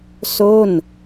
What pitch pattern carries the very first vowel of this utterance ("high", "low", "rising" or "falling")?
falling